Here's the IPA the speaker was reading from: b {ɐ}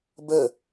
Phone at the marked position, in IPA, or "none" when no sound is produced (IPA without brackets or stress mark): ə